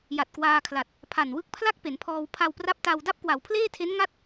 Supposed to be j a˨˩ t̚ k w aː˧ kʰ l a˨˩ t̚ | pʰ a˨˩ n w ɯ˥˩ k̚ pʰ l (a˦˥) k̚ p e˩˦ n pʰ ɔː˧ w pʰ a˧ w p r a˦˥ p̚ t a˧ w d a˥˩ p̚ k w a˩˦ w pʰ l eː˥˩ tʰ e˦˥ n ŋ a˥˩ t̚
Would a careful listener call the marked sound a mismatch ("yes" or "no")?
yes